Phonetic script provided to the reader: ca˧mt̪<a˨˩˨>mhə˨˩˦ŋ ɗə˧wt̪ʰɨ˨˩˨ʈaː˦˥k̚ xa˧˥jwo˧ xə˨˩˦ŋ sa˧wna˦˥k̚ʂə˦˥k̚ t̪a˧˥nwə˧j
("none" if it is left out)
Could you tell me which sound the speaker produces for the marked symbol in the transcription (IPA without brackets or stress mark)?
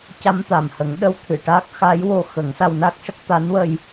a˨˩